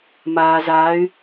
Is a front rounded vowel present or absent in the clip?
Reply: present